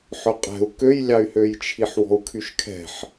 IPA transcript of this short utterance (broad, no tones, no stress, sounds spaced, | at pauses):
ħ œ qʼ ɛ̤ u̯ k ø j lʲ ɑ y̯ h ø j t͡ʃʰ i ħ w ɔ̤ u̯ kʰ y ʃ kʰ ɛ̤ ħ